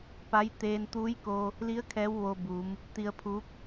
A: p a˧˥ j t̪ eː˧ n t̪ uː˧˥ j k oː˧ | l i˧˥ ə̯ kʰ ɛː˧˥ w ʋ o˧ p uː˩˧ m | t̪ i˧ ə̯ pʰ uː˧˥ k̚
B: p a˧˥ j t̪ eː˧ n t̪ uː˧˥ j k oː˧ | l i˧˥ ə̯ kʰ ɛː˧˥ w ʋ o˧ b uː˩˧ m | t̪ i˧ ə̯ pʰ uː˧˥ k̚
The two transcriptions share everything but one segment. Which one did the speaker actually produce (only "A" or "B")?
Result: B